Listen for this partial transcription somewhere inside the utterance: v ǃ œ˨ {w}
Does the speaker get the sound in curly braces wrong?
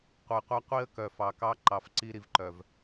yes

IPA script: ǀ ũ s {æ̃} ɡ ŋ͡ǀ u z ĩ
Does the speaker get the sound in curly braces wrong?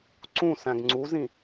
no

